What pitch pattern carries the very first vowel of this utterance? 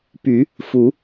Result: low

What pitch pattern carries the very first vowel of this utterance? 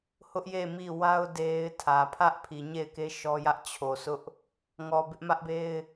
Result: high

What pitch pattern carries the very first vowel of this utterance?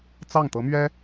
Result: falling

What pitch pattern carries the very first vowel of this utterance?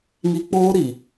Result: high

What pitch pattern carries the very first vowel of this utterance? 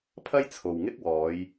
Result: high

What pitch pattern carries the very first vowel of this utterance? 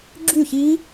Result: falling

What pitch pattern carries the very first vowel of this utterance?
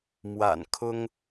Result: low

